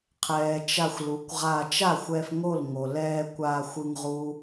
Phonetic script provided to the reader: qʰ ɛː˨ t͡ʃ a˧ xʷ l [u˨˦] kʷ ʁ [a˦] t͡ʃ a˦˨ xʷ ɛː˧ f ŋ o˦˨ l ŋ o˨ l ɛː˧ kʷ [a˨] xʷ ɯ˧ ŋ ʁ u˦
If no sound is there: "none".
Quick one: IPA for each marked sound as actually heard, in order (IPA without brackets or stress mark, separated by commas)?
u˨˦, a˧, a˧